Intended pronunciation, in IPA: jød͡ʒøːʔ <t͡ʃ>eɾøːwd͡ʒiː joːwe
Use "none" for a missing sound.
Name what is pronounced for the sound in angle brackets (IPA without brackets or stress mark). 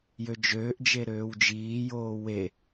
d͡ʒ